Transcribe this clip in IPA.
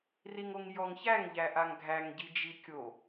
riŋoŋjɔŋçæŋ ʎæʔaŋɡʱæŋ ɟid͡ʒikʲo

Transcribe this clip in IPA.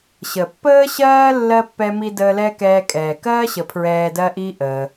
ɕə˩pːəː˥ɕɜː˥ lːɜ˥ pːɛ˦mi˦ dəː˦lɛː˥kɛː˦kʼɛː˩ kɜː˥ɕə˨ pʰɹɛː˦dɜ˥ʔi˥ ʔəː˨

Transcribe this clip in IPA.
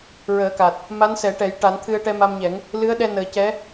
ɹəː˨˩˦ka˨˩t̚ | ma˧˥nsɛ˨˩˦ʈɛ˨˩˦j ʈa˨˩˦nt̪ʰɨ˧ə̯ ʈɛ˧ma˧mɲɛ˨˩˦ŋ | lɨ˧˥ə̯ɗɛ˧ nəː˨˩˦cɛ˧˥

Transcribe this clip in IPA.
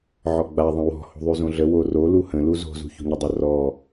ʕɔɡ͡ba ðˤə̃wɔ̤ ho̤ðˤyzõɮə woro luhə̃ luzo̤ zṳço̤ɲədˤə rɔ

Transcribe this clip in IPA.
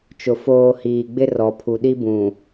t͡ʃʊ˨ foː˨ hiː˨ɡ͡bɪ˦ rɔ˨pʰu˨ɗi˦bũ˨

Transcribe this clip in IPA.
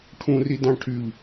ʈʰũri dɑ̃ʈʰyʎ

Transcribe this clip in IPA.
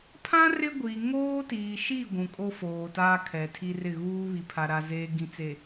pʰã˦ rɪ˦ɡʷi˨ ŋoː˦tiː˨ʃi˦˨ ɡʷũ˨kʼo˦foː˨ taː˦kʰɛ˨tʰi˦rɪ˦˨ ɣuː˦βi˨ pʰa˨ɾa˨ zeː˨ɡĩ˨t͡se˨

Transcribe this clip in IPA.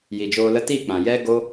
ji˨d͡ʒoː˧lə˦ ti˦˨k͡pã˨jɛ˦ɡo˦

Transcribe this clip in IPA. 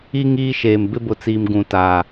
i˦ ŋiː˦ʃeː˨m bɪ˦bʊ˨t͡siː˨m ɡũ˨ta˨

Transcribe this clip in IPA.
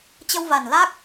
t͡ɕə˧wva˨˩n la˦˥k̚

